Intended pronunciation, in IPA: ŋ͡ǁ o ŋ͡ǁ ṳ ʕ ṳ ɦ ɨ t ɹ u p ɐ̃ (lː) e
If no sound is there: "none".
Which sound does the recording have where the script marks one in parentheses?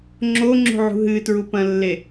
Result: lː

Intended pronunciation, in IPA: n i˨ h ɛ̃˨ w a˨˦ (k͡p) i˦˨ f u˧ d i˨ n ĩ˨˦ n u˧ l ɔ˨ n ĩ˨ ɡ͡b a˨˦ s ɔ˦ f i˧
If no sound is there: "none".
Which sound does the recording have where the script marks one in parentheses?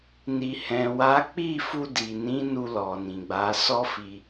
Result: k͡p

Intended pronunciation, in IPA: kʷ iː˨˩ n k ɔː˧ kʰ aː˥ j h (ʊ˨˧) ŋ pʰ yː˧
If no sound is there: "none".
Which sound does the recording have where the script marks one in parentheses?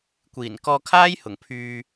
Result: ʊ˨˩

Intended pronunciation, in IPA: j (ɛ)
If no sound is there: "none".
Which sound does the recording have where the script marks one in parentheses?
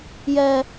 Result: ɛ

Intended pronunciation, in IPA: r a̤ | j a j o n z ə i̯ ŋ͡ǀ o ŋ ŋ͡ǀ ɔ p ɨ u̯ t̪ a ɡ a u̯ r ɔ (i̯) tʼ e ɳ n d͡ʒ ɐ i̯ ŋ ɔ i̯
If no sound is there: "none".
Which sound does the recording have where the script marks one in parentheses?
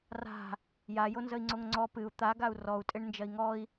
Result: u̯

